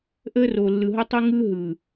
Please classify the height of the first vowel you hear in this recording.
mid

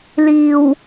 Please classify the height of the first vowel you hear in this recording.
high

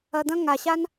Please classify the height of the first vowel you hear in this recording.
low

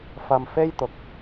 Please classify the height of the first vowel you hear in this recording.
low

